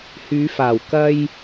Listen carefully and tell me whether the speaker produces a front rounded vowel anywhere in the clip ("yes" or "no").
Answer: yes